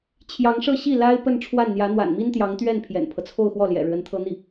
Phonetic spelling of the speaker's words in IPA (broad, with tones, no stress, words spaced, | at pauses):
t͡ɕʰjɑ˧˥ŋʂɤ˥˧ɕi˥˩ la˥ɪ̯ pə˥˧n ʈ͡ʂʰwa˥˩nn̪jä˧˥ n̪wa̰˨˩nmi˥nt̪jɑ˧˥ŋt̪ɥɛ˥˩n pʰjɛ̰˨˩npʰɤ˦t͡sʰo˥˧ʊ̯xwɔ˥˩ ljɛ̰˨˩ɻɻ̩˦ə˧˥nt̪ʰɤ˥ n̪i˥˩